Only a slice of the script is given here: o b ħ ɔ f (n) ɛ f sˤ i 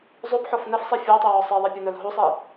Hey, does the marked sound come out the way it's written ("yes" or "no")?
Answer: yes